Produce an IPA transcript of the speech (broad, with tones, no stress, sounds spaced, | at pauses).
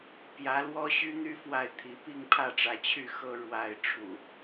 p j ä˨˦ l w ɔ˦ ɕ y˦ n̪ y˦ f w a˥˨ ɪ̯ t̪ʰ i˨˦ p i˥˨ ŋ pʰ ä˥˨ ʈ͡ʂ ä˨˦ t͡ɕʰ y˥˨ x ɤ˦ ɻ w a˥˨ ɪ̯ ʈ͡ʂʰ ṵ˨˩